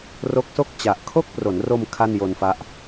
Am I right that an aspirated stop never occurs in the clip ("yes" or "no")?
no